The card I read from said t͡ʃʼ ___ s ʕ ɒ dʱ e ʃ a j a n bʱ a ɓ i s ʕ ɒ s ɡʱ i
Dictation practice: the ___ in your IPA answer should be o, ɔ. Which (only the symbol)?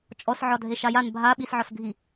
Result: ɔ